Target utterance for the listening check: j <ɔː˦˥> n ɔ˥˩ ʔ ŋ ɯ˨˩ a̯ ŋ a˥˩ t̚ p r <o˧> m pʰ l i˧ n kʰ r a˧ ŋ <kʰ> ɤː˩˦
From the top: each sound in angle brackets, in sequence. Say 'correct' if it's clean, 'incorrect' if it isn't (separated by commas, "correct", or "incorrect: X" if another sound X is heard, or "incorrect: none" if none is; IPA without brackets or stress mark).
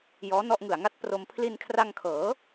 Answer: correct, correct, correct